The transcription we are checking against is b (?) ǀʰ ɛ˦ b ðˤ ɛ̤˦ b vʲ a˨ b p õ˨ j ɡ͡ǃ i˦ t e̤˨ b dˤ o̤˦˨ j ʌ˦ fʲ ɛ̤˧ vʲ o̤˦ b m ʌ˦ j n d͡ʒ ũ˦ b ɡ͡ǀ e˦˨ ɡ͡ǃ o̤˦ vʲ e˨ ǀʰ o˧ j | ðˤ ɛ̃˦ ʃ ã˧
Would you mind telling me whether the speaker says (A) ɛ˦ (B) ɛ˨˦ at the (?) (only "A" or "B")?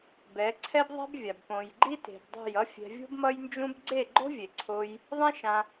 B